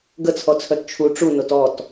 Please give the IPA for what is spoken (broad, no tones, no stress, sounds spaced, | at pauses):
ɡ ə t͡sʰ ɔ t͡sʰ œ t t͡ʃʰ u ʈ͡ʂ u n o t ɔ t